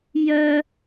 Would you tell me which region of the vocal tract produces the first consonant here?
palate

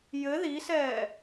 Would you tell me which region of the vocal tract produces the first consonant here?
palate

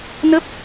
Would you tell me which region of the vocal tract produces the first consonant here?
tongue tip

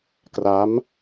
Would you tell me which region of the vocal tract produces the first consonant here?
velum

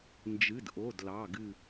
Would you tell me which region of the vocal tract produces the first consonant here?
tongue tip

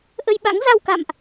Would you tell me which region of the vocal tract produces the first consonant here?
throat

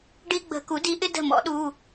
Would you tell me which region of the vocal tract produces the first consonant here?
retroflex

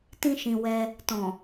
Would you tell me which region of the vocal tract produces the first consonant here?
tongue tip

